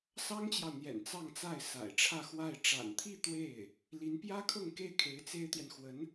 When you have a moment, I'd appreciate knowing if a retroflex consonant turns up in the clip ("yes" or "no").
yes